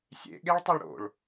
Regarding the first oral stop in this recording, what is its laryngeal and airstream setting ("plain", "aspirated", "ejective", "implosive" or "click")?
implosive